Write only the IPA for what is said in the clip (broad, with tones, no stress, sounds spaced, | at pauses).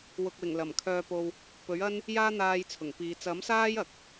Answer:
w ʊ˨ k̚ w ɪ˨˩ ŋ l ɐ˨˩ m kʰ œː˧ p o˧ w | p ɵ˨˥ ɥ ɐ˥ n | j aː˥ n̪ aː˧ j t͡sʰ ʊ˨˩ ŋ p iː˨˧ t͡s ɐ˨˥ m s aː˥ j ɐ˨ k̚